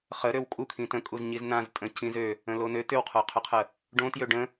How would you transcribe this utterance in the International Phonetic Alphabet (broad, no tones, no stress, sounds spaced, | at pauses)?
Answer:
χ ə ɾ ø w kʼ u kʰ ĩ t ə̃ kʼ u z ɲ i z n ã z tʼ ə̃ c ĩ z ø | ə̃ l o n ø t ʏ w qʰ o qʰ ʏ qʰ ə | ɖ õ t j ø ɖ ə̃